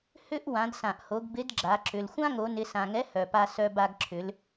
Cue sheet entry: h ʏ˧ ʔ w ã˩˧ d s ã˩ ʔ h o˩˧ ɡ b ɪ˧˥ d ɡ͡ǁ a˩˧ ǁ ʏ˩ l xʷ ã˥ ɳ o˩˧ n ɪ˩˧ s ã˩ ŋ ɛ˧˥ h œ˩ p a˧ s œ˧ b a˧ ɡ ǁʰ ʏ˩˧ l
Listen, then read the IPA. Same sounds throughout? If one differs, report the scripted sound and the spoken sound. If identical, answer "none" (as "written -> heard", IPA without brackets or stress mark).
ɳ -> ŋ